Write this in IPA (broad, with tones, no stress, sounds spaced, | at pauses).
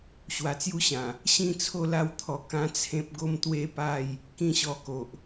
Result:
ɕ w a˨˩ t͡s j u˦ ɕ ã˨˩ | ɕ ĩ˥˧ t͡sʰ o˥˧ l a˥˧ w t̪ʰ ɔ˧ k ã˦ t͡sʰ ẽ˦ p̚ ɡ o˦ m t̪ w e˦ p a˥˧ j | k ĩ˥˧ ɕ ɔ˧ k o˨ ʔ